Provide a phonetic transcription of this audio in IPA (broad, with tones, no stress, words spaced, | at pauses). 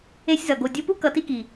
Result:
e˦sʲzʌ˨ ɡo˨dʲo˧pu˦ kʌ˧ti˦ki˨